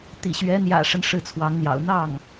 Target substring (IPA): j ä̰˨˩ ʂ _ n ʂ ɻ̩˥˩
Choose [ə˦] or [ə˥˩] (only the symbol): ə˦